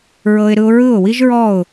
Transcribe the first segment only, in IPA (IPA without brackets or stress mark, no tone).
ɹ